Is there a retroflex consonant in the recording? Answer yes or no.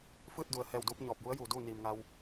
no